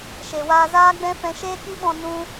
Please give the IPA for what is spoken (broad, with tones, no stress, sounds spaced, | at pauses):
ʃ e˨ w aː˧ z aː˦ ɡ͡b ɛ̃˦ f ɛ̃˧ ʃ eː˦ k i˦ ɓ ɔ̃˧ n ũ˦